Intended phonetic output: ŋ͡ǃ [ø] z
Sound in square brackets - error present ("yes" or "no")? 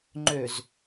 no